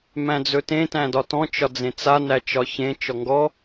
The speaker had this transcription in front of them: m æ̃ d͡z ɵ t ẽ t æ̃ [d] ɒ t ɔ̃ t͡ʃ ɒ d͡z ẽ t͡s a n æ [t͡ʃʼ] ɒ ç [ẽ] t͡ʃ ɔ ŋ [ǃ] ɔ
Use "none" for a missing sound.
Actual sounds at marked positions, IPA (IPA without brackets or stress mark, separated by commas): d, t͡ʃ, ẽ, ɡ